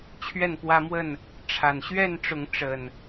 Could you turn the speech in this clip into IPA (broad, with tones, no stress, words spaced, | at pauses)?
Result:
t͡ɕʰɥɛ˥˨npwä˦mwə˥˨n | ʈ͡ʂʰa˨˩nɕɥɛ˥˨nʈ͡ʂʊ˨˦ŋ ʈ͡ʂə˨˩n